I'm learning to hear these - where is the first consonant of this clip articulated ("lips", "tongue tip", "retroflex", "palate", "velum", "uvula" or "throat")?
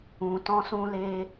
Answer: tongue tip